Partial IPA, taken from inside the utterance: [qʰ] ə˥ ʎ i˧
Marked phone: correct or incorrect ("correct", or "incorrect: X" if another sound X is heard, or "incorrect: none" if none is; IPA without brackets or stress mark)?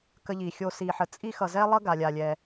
incorrect: k